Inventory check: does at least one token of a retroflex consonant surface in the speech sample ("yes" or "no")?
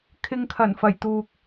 no